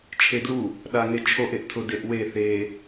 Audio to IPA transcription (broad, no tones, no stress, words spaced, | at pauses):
t͡ʃʰedlu | ɗaŋet͡ʃʰoʔ eʔtʰʊ deʔwe θe